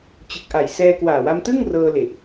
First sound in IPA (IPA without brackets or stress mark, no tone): t͡ɕ